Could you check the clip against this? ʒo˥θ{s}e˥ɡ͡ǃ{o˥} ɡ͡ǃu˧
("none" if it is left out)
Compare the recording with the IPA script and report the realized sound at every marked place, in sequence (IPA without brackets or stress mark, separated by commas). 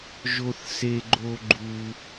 s, o˥